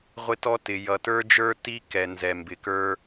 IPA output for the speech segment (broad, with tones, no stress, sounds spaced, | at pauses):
ʁʷ ɪ˦ t ɔ˦ t ɪ˨ j ʌ˨ t ə˞˦ d͡ʒ ə˞˦ t i˦ k ɛ˨ n z ɛ˨ m b ɪ˨ k ə˞˦